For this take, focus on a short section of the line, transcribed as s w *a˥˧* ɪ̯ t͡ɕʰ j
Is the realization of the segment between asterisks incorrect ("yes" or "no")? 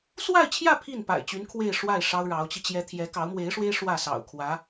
no